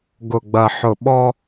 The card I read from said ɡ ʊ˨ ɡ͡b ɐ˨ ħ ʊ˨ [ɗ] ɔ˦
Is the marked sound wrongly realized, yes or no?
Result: yes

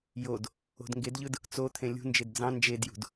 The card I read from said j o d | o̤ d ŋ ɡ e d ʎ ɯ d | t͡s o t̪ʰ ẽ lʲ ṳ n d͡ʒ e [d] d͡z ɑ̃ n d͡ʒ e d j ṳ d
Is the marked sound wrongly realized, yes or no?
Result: no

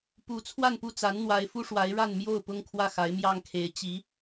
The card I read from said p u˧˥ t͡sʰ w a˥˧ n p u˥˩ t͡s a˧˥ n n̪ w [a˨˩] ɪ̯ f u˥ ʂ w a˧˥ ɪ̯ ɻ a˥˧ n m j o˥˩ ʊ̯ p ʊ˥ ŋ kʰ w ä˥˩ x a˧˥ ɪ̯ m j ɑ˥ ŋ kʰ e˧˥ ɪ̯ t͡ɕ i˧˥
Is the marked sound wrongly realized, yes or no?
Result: yes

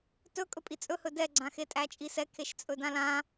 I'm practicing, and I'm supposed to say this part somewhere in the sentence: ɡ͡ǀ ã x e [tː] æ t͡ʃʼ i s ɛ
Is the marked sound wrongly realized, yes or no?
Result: yes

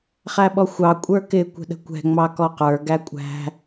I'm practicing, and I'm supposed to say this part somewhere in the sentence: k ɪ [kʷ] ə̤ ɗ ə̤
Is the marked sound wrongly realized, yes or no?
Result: no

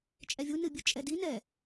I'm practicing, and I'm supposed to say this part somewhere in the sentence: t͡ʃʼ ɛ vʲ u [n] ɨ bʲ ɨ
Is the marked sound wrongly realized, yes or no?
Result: no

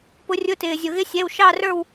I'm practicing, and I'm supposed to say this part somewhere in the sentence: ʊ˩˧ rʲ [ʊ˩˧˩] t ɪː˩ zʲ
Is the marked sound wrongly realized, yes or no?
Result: no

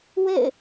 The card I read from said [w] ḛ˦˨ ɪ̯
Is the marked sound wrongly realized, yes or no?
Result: no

